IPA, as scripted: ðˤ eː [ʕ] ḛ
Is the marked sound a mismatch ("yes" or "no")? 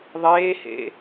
yes